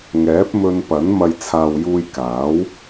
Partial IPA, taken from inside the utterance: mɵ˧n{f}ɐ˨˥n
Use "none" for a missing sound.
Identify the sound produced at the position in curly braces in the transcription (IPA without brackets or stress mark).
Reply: p